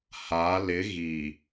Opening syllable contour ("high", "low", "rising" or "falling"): rising